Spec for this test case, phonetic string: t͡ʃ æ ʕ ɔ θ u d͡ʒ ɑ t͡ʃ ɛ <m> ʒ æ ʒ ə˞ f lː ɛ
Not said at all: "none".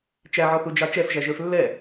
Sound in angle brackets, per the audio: f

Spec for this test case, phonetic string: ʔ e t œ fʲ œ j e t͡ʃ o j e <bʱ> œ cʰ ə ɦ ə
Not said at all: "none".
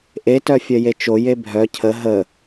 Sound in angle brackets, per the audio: bʱ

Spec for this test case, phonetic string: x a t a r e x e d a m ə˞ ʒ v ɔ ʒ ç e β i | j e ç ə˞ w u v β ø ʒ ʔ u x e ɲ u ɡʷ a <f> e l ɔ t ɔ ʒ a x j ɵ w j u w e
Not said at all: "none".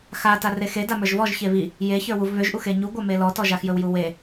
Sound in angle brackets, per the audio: m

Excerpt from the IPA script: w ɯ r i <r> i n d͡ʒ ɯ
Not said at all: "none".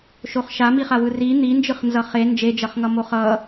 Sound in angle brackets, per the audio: n̪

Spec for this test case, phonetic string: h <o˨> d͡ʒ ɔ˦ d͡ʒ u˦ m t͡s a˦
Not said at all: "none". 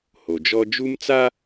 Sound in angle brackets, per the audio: o˨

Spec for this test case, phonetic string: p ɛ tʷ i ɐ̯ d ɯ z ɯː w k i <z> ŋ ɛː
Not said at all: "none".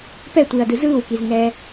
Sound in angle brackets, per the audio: z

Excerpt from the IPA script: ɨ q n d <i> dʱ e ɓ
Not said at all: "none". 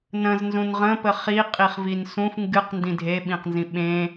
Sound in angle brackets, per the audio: ĩ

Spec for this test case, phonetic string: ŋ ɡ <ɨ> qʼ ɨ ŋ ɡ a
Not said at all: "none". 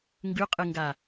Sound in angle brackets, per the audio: ʉ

